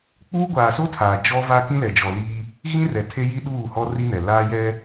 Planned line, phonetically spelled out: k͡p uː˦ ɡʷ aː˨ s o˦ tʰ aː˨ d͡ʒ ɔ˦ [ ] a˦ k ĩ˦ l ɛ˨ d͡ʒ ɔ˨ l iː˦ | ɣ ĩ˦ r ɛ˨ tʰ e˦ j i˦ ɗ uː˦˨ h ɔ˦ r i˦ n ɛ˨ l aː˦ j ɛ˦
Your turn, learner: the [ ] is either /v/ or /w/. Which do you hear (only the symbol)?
v